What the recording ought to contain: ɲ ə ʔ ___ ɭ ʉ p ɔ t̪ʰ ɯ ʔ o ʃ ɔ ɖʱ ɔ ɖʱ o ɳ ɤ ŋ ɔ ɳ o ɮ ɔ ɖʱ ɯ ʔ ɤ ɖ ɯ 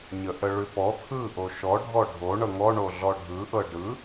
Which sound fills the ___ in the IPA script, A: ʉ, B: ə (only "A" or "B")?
B